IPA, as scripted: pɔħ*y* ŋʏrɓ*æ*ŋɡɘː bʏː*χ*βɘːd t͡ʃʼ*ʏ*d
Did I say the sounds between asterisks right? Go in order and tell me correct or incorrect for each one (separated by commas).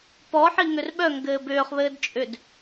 incorrect, incorrect, correct, correct